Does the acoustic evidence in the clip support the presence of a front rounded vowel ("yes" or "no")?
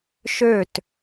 yes